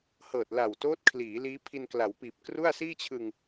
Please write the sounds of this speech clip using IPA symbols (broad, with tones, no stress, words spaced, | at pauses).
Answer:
hɤː˨˩t̚la˨˩wtoː˦˥t̚kʰliː˩˦ liː˦˥pʰi˧nkla˩˦wpiː˨˩p̚ kru˥˩a̯ siː˥˩t͡ɕʰɯ˧ŋ